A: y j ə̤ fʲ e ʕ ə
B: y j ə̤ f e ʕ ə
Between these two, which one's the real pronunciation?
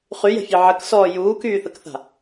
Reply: A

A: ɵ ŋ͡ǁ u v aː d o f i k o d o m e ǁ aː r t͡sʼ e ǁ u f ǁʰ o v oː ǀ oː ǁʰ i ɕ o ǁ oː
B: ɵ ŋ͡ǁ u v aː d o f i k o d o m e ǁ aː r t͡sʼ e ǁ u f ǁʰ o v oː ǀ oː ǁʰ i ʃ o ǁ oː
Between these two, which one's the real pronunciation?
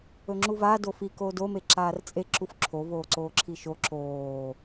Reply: B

